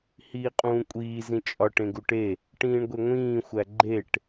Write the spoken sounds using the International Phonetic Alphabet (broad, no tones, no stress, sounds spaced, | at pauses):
h iː qʼ ũː kʷʼ iː z ĩ t͡ʃʼ ɒ ʈ ẽ ɡ u ʈ e | ʈ ĩː ɳ ɡʷ e ŋʷ ĩː xʷ æ ɡ͡ǃ e ʈ